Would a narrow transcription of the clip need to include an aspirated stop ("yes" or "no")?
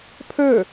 yes